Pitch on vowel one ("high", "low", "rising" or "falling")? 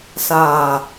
low